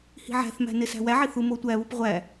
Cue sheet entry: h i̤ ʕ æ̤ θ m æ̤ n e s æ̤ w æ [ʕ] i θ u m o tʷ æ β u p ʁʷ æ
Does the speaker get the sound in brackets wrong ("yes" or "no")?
no